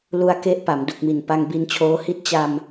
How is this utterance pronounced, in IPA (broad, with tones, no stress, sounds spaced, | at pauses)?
l u˧ a̯ k e˦˥ ʔ p a˩˦ m d u˨˩ k̚ m i˨˩ n p a˧ ŋ b i˧ n t͡ɕʰ oː˦˥ h i˥˩ t̚ t͡ɕ a˧ m